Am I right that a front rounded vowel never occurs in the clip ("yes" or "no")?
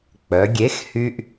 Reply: no